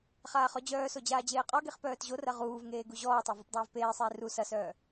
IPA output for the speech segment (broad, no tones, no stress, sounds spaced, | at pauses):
χ aː χ ɔ d͡ʑ œː s o d͡ʑ aː d͡ʑ eː qʼ ɔ ɡ e χ p œː t ʑ o r ɐ ʁ uː v ŋ eː ɡ u ʑ ɔː tˤ a v ɔ p dˤ œː v p eː sˤ eː r u s ɐ s œː